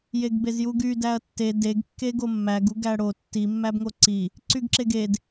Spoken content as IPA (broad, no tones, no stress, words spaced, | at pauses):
jeɡbezjuɡy dæɐ̯tːe deɡ kːeɡomːæɡ uɡæɽo tːi mːæbŋoǀi | ǀyɡǁeɡed